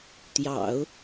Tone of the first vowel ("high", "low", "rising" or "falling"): low